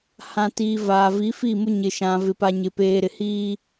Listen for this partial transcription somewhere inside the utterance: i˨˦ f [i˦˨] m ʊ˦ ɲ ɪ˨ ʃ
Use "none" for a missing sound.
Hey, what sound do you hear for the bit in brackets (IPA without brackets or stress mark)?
i˦˨